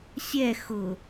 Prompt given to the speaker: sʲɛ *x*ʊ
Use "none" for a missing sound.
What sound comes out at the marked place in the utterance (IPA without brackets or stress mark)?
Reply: x